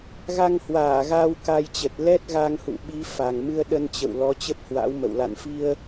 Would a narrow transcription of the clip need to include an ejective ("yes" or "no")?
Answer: no